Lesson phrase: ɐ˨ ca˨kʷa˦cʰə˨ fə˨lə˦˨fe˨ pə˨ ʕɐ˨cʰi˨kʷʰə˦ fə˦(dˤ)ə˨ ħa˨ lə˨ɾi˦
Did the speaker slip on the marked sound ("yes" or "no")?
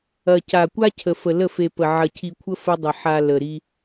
no